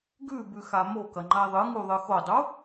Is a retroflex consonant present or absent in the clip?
absent